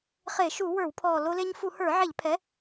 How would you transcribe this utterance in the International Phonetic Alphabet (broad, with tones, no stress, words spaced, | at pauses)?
χe˧˩˧ʃu˧˩˧ wə˞˧˩˧wpʰɔ˨˩ lo˧le˧ɲfu˧˩˧hə˞˧˩˧ ʕe˧˩˧ʎpʰɛ˩˥